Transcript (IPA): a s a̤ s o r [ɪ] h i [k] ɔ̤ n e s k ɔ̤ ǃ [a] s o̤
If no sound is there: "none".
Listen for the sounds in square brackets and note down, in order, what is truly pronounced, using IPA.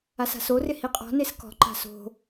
ɪ, qʼ, a̤

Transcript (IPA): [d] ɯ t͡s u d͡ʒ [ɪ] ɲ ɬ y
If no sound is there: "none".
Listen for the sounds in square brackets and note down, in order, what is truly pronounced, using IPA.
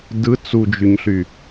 d, y

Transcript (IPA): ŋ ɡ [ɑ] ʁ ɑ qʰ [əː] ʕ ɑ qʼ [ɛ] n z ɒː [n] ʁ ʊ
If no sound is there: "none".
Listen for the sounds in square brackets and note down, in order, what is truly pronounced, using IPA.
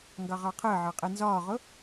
ɑ, əː, ɛ, none

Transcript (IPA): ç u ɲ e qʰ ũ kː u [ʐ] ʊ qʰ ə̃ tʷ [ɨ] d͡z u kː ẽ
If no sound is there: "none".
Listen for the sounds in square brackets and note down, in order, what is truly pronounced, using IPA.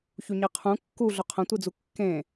ɮ, ɨ

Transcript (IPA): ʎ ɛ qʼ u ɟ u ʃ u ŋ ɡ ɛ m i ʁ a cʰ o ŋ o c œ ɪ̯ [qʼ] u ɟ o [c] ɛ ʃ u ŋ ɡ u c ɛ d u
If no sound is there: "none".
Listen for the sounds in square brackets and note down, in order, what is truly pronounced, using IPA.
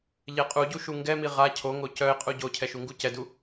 qʼ, cʰ

